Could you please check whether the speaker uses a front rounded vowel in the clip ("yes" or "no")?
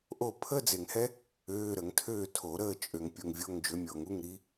yes